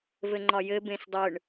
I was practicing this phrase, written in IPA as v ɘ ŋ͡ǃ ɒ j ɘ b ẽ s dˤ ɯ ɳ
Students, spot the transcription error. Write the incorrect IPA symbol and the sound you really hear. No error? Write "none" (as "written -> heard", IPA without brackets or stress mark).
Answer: none